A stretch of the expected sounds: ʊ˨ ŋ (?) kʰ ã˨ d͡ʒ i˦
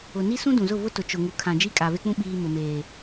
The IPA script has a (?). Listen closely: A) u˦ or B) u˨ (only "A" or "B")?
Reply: B